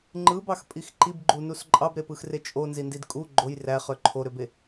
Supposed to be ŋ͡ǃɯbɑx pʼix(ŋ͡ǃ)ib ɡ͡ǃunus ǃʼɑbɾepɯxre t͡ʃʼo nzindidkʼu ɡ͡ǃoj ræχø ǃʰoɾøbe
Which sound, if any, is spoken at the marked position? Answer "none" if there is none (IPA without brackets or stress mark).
ǃ